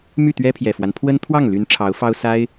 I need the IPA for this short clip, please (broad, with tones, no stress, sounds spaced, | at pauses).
m y˥˩ t̪ ɥ ɛ˥ pʰ j ɛ˨˩ f w a˦ n pʰ w ə˥ n t̪ʰ w ɑ˥˩ ŋ l y˧˥ n ʈ͡ʂʰ ɑ˧˥ ʊ̯ f ɑ˥ ʊ̯ s a˥ ɪ̯